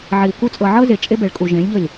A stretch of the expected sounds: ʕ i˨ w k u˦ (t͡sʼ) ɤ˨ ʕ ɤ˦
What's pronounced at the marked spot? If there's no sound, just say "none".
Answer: t͡sʼ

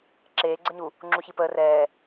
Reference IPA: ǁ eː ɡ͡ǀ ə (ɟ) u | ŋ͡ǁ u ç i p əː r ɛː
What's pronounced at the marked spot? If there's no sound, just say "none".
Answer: ɲ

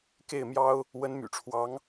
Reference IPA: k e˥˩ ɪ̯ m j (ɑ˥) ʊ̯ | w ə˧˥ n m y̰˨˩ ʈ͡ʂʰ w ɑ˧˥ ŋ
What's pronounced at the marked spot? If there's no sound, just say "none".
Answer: ɑ˥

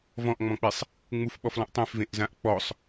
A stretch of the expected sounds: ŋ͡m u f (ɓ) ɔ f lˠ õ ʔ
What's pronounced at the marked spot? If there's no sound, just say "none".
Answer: ɓ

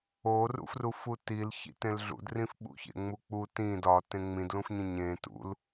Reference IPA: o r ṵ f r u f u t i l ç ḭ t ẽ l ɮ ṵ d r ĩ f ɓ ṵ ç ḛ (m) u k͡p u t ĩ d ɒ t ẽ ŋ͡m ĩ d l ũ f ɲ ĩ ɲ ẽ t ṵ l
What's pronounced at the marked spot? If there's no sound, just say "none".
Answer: ŋ͡m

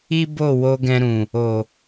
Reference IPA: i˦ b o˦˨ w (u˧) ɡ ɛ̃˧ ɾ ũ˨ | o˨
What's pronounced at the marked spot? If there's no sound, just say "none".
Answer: o˧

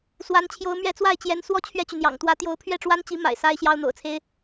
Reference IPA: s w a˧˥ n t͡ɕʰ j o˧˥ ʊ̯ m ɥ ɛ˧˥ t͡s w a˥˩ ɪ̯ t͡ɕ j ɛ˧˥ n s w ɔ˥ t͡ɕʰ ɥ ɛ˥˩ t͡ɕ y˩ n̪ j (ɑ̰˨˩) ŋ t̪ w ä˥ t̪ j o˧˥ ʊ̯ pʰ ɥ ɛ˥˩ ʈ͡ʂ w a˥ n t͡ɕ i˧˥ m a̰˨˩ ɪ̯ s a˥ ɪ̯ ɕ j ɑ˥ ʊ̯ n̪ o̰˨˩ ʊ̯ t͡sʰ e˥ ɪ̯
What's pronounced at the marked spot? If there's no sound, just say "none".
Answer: ɑ̰˨˩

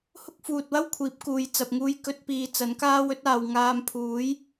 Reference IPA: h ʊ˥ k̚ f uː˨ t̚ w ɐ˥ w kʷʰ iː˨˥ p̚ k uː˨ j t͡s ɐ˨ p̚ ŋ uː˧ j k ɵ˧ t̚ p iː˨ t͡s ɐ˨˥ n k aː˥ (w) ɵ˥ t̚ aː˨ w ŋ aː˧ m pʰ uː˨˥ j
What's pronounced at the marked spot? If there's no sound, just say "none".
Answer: w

